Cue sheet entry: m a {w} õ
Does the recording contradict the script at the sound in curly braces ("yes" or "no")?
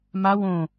no